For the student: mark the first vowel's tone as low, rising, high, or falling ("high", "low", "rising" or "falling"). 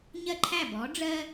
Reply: falling